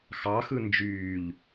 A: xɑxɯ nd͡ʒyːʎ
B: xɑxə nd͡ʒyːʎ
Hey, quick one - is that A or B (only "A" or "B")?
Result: A